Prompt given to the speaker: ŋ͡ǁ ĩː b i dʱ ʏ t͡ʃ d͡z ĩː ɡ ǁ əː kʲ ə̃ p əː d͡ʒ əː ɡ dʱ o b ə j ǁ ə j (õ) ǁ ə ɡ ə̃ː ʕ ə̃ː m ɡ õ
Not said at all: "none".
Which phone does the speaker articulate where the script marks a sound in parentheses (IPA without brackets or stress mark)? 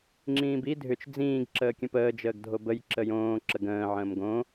õː